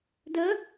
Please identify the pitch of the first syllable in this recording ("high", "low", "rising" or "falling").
rising